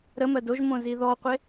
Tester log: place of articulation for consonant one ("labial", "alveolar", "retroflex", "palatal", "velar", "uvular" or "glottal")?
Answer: alveolar